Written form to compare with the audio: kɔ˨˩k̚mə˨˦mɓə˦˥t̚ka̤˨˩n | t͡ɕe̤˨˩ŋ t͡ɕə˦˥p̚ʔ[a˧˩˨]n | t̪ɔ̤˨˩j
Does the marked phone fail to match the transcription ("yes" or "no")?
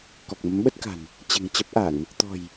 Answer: no